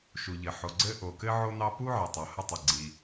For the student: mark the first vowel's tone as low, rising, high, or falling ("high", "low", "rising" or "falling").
low